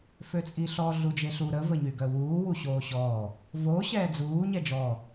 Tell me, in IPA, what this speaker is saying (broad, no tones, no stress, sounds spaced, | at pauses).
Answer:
f ø t͡sʼ i ɬ ɔ ɮ u d͡ʒ e ɬ u ɾ ə v ə ɲ y ɡ œ w uː w u ɕ oː ɕ ɔ | v o ɕ ɛː d͡z uː ɲ ɛ d͡ʒ ɔ